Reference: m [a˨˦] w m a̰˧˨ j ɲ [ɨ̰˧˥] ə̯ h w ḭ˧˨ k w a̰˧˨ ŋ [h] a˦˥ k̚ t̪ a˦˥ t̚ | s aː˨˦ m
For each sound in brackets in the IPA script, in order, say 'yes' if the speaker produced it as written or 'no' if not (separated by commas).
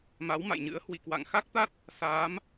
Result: yes, yes, no